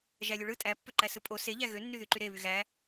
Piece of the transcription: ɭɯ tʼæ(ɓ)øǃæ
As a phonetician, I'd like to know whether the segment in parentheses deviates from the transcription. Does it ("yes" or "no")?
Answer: yes